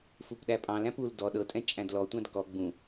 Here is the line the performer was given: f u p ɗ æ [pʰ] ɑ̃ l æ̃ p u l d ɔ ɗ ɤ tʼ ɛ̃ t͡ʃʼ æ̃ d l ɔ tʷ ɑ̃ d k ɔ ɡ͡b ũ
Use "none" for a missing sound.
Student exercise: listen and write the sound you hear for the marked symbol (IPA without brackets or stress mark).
pʼ